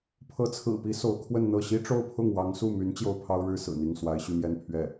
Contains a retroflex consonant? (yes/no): yes